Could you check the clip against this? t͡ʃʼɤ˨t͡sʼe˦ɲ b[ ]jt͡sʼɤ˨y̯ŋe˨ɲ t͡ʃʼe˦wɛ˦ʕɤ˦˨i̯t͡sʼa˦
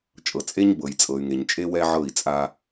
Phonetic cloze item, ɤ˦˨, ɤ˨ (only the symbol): ɤ˨